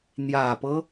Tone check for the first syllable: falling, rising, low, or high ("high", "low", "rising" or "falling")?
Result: low